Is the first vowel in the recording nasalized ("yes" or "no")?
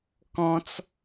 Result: yes